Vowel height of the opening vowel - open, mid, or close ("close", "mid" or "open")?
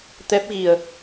mid